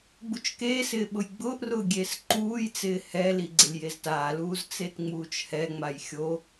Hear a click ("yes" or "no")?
yes